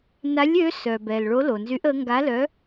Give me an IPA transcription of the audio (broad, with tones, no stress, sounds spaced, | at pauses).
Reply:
n a˨˥ lʲ ø˨˥ s œ˩ b ɛ˩ l ɭ o˨˥ l o˩ n z y˨˥ ʔ ə˨˥ ŋ ɡ a˨˥ l œ˨˥